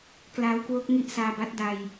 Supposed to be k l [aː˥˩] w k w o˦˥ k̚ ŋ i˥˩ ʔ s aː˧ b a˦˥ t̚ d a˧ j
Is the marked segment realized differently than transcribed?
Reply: yes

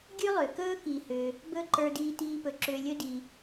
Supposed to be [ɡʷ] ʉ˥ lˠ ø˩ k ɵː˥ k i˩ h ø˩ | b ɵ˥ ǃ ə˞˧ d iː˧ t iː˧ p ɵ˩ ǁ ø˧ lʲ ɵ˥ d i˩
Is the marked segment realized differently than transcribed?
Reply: yes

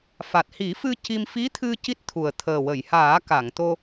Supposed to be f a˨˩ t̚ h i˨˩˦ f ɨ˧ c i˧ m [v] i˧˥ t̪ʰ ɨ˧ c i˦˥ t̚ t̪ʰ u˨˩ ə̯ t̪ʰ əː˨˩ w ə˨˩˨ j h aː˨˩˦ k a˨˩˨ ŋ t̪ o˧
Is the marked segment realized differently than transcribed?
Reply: yes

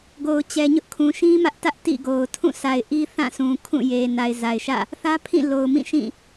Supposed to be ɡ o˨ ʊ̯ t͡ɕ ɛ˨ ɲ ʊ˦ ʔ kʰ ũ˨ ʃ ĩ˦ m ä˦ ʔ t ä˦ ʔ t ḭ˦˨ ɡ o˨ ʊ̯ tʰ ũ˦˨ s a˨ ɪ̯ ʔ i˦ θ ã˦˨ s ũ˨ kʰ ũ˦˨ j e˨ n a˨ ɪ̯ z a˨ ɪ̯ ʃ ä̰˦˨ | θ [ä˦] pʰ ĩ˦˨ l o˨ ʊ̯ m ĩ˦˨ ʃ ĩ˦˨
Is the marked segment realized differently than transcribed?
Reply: no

